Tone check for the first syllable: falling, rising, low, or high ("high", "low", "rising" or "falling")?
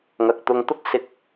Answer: low